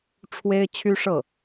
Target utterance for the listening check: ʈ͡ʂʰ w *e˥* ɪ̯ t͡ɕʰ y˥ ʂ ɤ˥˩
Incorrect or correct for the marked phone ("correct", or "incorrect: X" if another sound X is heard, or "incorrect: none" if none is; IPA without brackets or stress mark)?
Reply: correct